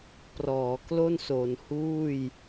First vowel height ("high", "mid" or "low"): mid